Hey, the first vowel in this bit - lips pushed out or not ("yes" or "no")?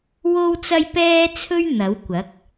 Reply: yes